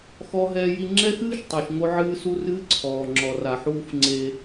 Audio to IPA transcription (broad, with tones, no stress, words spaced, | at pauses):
xɔ˦ɦɛː˦ji˦ ŋ͡ǁɛ˦xɨː˦ʃ tˤɨ˨ʃŋo˦ʕɨː˦ su˦rɨː˦ǀʰɔː˨ ŋ͡ǁɔ˨ra˨ħuː˦f ŋ͡ǀe˦